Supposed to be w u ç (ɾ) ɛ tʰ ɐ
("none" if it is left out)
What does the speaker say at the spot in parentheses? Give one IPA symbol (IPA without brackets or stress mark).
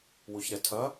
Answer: ɾ